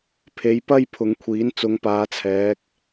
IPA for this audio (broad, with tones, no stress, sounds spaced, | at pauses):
pʰ e˨˥ j p ɐ˥ j pʰ ʊ˨˥ ŋ kʷʰ iː˨˥ n t͡s ʊ˨˥ ŋ p aː˨˥ t͡sʰ ɛː˨˥ k̚